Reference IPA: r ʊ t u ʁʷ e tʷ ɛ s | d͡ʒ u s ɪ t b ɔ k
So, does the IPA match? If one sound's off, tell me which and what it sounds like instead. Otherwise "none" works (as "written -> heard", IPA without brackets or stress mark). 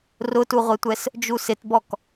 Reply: none